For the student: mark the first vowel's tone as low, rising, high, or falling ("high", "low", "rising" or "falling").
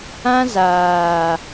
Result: high